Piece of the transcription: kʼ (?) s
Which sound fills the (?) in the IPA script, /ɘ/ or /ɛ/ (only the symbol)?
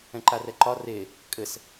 ɘ